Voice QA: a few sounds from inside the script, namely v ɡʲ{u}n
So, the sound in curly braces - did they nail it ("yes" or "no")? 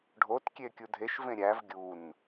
yes